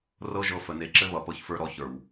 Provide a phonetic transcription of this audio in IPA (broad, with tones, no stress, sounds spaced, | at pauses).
r ɤ˦ ʒ ɤ˧ f ə˨ n e˧ ǁ ɘ˦ β ʌ˨ p ɤ˧ ç f ə˞˧ ɾ ɔ˧ ç ə˞˨ w